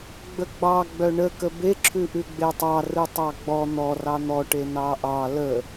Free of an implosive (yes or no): yes